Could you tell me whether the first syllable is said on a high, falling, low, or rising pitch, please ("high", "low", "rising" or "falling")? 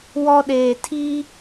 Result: high